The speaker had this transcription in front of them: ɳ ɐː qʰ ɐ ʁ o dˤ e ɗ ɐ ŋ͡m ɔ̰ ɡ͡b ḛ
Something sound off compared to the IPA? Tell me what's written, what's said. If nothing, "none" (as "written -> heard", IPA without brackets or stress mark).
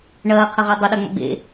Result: none